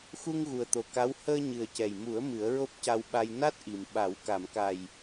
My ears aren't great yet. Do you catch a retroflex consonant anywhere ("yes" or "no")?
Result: no